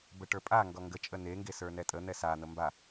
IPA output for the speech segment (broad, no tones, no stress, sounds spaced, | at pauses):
b ə ʈ ə˞ pʼ a ŋ ɡ ɔ ŋ ɡ ə t͡ʃʼ ə n e ŋ ɡ e s ə˞ n ɛ tʼ ə n̪ ɛ s a n̪ ə m b a